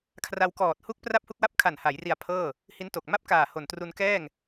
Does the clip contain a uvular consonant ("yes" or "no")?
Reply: no